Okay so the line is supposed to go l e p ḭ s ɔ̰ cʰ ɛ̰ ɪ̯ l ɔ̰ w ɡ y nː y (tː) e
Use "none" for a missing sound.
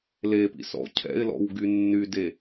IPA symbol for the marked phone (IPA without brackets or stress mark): d